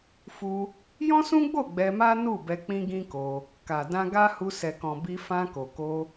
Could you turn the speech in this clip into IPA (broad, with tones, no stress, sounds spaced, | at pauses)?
f u˧ | j ɔ̃˦ s ũ˦ ɡ͡b o˦˨ ɡ͡b ɛ˧ m a˦ n u˦˨ b ɛ˧ k͡p ĩ˦ ɡ ĩ˦ k o˧ | k a˨ d ã˧ ɡ a˦ h u˧ s ɛ˨ k ɔ̃˨ b i˧ f ã˧ k o˨ k o˧